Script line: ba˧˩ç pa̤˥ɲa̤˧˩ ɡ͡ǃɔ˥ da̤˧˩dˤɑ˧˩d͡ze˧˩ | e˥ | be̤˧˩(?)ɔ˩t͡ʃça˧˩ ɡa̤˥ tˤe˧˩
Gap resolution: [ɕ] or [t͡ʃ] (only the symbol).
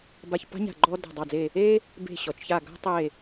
ɕ